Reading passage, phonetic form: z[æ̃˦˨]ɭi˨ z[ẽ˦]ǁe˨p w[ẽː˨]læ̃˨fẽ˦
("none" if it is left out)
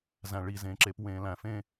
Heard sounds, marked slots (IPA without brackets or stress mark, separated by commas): æ̃˨, ẽ˨, ẽː˨